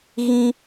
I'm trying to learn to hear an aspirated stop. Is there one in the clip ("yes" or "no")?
no